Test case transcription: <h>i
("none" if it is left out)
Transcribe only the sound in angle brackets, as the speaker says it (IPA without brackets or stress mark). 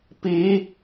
p